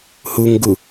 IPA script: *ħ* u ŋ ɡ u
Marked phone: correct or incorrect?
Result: incorrect